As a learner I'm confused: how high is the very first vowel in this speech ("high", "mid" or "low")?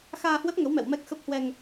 low